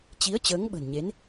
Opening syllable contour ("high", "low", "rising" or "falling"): rising